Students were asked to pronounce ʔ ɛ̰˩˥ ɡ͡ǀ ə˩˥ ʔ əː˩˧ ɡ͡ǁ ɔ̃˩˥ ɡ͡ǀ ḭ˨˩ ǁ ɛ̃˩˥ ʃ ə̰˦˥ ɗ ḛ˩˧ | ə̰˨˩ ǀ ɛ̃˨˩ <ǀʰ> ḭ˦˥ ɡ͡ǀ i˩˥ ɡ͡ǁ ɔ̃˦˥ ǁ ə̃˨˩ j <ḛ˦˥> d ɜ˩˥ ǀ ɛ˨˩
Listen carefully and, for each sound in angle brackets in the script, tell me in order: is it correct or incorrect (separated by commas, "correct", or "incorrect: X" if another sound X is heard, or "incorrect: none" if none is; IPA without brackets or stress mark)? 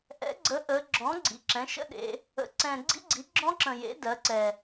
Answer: incorrect: ɡ͡ǀ, incorrect: ḛ˩˥